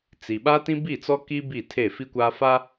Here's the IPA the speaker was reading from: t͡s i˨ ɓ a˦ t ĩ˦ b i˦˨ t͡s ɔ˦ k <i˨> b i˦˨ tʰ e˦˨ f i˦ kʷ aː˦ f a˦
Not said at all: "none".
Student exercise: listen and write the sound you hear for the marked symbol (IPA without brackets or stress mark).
i˦